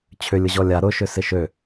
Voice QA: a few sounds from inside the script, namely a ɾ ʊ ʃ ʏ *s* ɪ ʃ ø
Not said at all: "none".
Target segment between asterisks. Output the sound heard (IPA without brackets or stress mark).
s